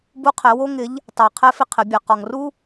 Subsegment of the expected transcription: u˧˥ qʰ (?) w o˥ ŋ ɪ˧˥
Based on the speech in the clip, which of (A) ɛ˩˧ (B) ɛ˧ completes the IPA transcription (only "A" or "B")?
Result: A